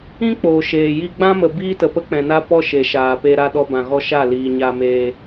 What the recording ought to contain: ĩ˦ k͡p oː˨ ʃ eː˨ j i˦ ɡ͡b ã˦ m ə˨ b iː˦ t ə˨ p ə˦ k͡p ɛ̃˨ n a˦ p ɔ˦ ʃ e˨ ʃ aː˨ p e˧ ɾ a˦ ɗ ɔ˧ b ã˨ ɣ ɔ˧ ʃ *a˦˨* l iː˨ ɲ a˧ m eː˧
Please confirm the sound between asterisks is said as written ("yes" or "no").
yes